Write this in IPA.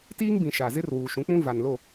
t iː˦ ŋ b ĩ˨ ʃ a˨ z ɪ˦ r w uː˨ ʃ ũ˨˦ k͡p ũ˦ v a˨ n l o˦˨

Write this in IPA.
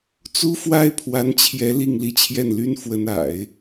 t͡s u˥ f w a˥ ɪ̯ pʰ w a˧˥ n t͡ɕʰ j ɛ˧˥ l i˥˧ ŋ l i˥˧ t͡ɕʰ j ɛ˥˩ n l y˥ n f w ə˧˥ n a̰˨˩˦ ɪ̯

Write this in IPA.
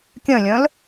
kʲ œ̃ lʲ œ̃ l

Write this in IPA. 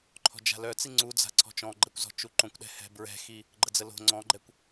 ǃʰ ɔ̤ d͡ʒ a̤ l œ t͡s i ŋ͡ǀ u d͡z a̤ ǀʰ ɔ̤ t͡ʃ ɔ̃ ɡ͡ǃ ɛ kʷ z ɔ̤ t͡ʃ u ǃ õ kʷ ɗ ɛ̤ h ɛ̤ b ɹ ɛ̤ x i | ɡ͡ǃ ə d͡z ə l o̤ ŋ͡ǀ ɔ̃ ɡ͡ǃ ɛ kʷ

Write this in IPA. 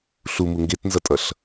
ɬ u m u ŋ ɡ e t n z ʌ tʼ ʌ ɬ

